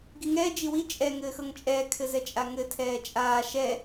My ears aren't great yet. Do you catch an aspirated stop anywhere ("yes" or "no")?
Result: yes